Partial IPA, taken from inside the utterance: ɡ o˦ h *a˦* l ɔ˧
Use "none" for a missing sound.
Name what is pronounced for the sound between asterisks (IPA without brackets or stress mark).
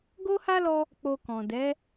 a˦